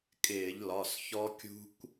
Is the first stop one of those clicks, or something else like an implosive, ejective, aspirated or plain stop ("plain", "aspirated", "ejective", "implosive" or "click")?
ejective